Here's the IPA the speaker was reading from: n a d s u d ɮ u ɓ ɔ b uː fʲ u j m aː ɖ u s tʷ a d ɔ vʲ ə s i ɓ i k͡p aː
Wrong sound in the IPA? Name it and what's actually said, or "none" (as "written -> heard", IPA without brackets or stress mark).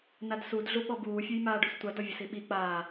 none